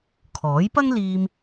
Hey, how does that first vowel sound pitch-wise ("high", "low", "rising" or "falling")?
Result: rising